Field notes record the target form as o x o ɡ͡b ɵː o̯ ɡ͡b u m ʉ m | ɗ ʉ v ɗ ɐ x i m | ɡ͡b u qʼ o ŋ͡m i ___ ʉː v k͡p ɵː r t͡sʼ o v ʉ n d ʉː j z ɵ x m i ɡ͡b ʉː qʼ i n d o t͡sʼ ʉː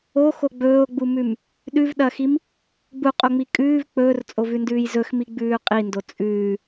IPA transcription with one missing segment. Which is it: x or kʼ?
kʼ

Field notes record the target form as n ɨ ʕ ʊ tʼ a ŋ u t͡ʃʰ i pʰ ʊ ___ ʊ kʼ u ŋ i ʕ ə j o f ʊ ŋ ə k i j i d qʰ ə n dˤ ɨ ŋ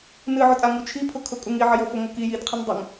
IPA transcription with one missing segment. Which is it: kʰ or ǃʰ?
kʰ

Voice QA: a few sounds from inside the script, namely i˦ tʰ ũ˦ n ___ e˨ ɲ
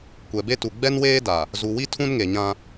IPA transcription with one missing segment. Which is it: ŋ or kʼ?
ŋ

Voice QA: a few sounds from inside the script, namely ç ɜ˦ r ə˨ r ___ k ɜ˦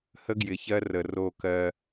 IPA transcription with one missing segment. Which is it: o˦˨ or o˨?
o˦˨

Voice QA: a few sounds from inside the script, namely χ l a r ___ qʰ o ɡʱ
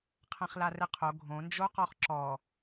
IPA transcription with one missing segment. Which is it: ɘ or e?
ɘ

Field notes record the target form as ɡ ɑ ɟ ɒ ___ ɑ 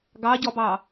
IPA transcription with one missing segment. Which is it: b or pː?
b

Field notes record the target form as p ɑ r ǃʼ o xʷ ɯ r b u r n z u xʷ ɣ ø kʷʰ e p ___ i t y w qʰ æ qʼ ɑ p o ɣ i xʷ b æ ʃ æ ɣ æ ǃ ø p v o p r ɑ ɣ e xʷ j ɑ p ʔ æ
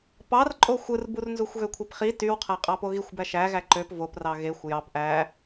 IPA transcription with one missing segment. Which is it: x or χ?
χ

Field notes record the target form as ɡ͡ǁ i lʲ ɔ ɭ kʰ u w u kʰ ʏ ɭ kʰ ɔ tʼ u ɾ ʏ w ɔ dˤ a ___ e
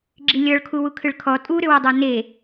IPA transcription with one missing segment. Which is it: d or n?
n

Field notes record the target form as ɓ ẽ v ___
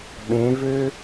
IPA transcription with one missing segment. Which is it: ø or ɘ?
ø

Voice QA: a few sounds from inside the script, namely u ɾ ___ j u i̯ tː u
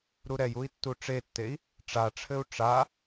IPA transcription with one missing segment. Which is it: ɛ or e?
ɛ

